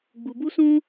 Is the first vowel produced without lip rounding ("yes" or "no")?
no